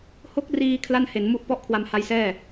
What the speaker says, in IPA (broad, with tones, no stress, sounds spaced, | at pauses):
h o˦˥ k̚ r iː˧ kʰ l a˥˩ n h e˩˦ n m u˦˥ ʔ p ɔ˥˩ ʔ kʰ w a˧ m h a˦˥ j s ɛː˥˩